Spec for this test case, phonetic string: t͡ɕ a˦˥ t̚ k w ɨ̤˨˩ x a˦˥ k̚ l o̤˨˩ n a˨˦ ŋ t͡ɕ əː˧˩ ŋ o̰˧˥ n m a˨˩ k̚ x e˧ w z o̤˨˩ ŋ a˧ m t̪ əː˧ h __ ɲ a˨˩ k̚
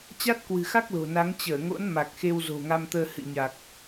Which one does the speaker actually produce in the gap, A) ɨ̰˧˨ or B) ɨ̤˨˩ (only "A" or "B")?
A